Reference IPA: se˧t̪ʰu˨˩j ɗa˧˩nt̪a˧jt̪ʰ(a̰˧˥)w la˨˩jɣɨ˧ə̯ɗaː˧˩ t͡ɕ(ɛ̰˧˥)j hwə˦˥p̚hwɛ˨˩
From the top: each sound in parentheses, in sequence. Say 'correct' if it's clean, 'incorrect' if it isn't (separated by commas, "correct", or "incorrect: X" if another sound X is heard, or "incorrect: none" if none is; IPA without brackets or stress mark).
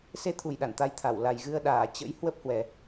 incorrect: a˧˩, incorrect: ə̰˧˥